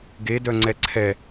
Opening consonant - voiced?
yes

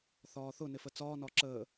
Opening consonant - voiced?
no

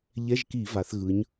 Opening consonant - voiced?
yes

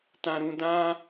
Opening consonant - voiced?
no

